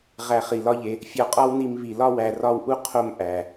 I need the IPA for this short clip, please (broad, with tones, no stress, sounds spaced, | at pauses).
ʁ æ˧ χ i˨ l ɒ˦ ʎ e˧ | fʲ ɒ˧ qʼ ɒ˦ w n i˧ m β i˨ l ɒ˦ w æ˨ r ɒ˧ w ʔ u˧ qʰ o˦ m ʔ æ˨